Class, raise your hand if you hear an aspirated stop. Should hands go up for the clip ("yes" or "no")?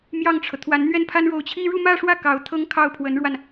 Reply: yes